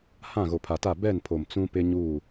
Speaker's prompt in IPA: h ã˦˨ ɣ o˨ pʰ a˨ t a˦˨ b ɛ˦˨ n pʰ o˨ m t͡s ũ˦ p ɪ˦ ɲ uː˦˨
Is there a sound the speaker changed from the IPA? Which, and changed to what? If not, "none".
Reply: none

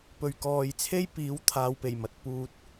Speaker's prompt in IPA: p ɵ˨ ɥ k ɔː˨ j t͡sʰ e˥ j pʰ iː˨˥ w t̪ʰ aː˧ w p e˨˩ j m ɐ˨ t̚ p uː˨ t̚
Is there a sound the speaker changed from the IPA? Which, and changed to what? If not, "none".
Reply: pʰ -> p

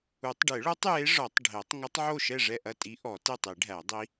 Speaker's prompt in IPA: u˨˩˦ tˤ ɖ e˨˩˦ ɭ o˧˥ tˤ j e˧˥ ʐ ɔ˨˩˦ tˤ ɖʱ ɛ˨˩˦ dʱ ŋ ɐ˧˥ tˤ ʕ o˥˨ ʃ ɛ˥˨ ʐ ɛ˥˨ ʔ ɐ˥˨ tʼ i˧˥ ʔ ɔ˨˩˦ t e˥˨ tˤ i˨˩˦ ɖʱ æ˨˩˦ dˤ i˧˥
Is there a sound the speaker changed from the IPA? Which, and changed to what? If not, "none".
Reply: dʱ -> tˤ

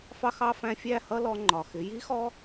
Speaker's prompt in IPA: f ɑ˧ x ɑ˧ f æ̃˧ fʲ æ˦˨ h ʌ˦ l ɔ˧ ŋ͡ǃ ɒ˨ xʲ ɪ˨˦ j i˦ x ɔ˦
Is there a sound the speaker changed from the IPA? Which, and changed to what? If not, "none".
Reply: xʲ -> x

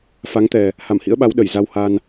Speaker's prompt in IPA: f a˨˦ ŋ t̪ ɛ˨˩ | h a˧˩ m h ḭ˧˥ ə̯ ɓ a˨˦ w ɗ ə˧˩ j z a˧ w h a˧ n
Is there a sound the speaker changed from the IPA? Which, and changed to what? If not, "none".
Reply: none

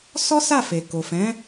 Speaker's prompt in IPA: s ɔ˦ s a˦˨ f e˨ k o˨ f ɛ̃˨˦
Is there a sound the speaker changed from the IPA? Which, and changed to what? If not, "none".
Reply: none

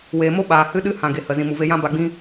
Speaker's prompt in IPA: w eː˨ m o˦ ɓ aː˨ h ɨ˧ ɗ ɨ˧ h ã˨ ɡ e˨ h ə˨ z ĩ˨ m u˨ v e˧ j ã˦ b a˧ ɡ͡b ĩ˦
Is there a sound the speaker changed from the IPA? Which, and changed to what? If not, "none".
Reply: none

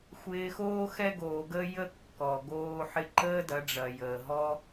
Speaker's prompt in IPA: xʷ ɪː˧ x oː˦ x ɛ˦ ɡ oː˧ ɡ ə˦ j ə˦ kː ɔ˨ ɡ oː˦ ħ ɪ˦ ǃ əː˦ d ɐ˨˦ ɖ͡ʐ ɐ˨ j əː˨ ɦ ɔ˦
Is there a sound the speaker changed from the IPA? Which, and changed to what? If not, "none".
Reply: none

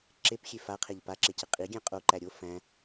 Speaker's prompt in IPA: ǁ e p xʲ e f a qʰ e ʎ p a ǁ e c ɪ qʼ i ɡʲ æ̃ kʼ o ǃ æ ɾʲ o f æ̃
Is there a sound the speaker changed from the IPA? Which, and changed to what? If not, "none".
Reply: kʼ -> qʼ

